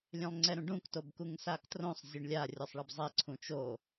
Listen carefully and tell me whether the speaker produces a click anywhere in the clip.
yes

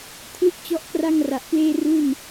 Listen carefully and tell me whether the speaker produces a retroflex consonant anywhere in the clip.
no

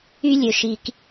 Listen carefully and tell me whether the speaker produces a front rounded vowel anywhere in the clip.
yes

